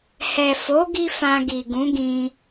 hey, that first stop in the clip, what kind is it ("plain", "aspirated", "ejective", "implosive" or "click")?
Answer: plain